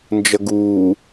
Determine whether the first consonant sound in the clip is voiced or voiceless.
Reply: voiced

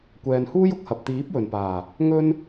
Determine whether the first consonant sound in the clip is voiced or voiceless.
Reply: voiceless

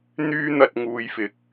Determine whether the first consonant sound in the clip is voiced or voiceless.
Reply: voiced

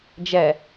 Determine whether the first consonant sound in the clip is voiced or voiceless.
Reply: voiced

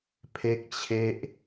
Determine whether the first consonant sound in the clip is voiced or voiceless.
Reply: voiceless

